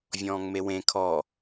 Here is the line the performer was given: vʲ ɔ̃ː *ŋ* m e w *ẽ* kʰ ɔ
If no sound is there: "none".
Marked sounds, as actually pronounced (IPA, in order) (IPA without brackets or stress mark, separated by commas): ŋ, ẽ